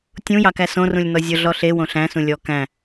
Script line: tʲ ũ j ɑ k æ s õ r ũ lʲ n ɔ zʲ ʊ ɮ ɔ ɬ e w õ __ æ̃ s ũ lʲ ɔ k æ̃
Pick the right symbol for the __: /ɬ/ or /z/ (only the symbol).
ɬ